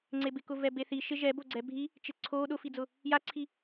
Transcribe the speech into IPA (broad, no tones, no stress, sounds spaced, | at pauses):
ŋ͡ǀ e b ɪ k ʊ v ɛ b e θ i ʃ ɪ ʒ ɛ b o ɡ͡ǀ ɛ bʱ i | t͡ʃ ɪ ǀʰ o ɗ ʊ f i d͡z ʊ | j a ǀʰ i